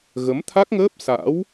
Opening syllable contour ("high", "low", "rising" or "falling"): rising